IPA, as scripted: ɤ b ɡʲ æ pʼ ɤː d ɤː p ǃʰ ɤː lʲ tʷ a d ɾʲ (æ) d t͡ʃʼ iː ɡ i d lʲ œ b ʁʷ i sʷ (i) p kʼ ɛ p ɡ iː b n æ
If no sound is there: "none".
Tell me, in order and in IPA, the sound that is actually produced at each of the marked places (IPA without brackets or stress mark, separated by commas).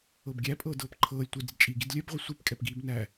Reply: ɛ, i